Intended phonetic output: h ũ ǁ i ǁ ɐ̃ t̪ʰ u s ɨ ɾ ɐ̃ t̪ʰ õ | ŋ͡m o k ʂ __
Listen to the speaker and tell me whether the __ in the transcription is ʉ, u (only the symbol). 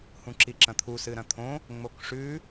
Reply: ʉ